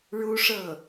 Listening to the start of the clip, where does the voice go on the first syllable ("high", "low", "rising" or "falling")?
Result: high